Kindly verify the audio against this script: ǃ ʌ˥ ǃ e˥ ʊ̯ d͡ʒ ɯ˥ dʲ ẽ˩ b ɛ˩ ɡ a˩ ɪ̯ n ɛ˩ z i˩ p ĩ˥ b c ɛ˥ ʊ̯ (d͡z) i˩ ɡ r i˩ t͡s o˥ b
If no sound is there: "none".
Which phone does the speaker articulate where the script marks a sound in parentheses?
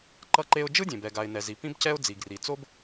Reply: d͡z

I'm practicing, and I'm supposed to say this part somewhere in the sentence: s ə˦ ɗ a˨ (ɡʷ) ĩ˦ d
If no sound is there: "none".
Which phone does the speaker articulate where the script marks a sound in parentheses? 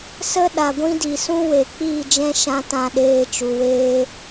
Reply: ɡʷ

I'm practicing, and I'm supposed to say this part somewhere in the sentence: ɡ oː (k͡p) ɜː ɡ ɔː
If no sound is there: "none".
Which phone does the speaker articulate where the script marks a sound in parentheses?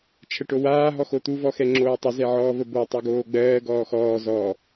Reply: ɡ͡b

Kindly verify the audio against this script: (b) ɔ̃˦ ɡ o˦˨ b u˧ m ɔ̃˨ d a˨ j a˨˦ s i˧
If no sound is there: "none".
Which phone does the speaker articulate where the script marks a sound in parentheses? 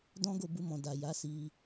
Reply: d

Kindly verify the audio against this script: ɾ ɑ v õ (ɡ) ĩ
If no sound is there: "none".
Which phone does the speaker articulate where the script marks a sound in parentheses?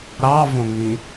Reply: ŋ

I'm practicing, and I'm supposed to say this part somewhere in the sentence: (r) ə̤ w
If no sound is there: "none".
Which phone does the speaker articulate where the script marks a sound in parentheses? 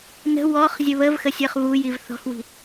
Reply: n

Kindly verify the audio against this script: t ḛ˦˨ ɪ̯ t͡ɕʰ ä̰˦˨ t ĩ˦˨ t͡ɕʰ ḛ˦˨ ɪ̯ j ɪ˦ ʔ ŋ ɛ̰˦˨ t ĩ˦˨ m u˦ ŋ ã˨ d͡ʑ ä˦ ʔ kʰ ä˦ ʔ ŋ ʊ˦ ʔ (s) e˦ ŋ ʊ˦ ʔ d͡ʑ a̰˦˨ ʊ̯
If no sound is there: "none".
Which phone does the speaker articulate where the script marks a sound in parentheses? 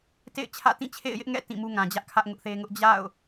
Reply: θ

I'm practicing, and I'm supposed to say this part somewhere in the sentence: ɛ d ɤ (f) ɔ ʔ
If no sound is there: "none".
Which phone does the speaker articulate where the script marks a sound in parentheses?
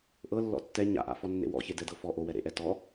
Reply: f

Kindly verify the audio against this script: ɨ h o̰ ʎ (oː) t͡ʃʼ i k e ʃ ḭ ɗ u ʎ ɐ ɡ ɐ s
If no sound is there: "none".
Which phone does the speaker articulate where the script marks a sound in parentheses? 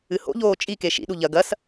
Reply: oː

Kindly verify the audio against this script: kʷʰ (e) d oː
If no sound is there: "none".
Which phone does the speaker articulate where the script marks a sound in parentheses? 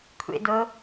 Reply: ḛ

